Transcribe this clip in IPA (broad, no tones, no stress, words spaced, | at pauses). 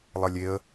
lˠəlʲeə̯